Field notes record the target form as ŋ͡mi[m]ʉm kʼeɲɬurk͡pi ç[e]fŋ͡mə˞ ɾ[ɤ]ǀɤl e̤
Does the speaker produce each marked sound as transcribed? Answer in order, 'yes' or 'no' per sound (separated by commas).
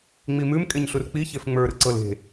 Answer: yes, yes, no